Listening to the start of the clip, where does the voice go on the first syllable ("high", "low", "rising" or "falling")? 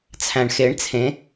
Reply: low